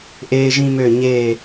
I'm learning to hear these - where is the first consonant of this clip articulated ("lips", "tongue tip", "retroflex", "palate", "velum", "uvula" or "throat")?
throat